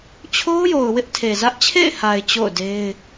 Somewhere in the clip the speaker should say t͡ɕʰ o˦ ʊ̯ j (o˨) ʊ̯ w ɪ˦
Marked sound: correct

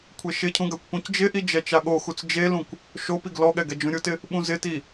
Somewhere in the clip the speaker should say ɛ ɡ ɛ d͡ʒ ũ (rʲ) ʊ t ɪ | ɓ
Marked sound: incorrect: ɾʲ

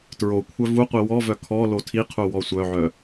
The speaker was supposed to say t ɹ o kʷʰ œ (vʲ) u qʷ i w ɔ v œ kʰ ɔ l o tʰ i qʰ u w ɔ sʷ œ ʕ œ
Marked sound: incorrect: v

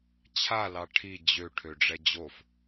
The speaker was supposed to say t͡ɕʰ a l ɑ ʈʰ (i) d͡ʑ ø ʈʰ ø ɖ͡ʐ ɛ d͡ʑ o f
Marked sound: correct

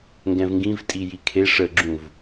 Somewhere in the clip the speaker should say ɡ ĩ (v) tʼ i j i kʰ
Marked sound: correct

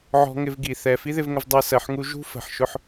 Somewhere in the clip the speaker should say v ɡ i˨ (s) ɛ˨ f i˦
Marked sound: incorrect: θ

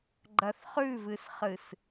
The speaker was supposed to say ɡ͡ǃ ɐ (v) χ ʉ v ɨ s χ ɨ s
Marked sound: incorrect: θ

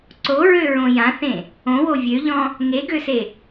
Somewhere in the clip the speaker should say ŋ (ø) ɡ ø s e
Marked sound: incorrect: e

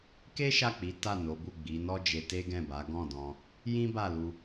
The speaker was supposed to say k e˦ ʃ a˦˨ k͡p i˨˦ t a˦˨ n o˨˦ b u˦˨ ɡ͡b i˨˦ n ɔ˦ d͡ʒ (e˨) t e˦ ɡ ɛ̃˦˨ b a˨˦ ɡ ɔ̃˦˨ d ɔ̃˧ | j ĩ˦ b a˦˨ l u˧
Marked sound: incorrect: e˧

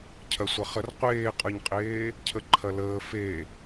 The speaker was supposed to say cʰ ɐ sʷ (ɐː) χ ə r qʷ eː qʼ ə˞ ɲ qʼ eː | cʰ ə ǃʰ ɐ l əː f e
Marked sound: incorrect: ɐ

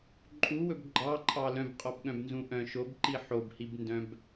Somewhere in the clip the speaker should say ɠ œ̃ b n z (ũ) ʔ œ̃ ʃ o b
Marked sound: correct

